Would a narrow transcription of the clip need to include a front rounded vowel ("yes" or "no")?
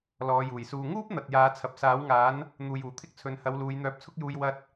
yes